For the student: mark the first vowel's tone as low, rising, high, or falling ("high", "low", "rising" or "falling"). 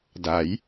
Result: rising